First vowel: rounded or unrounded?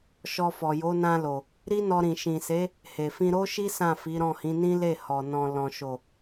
rounded